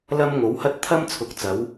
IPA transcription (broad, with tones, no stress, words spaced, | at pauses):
lɐ˥mŋo˨˥whɐ˥t̚ t̪ʰɐ˥mt͡sʰʊ˨˥k̚ t͡sɐ˨˥w